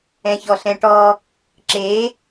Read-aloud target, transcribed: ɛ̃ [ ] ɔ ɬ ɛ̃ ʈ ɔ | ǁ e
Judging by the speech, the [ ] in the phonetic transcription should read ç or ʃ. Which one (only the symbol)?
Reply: ç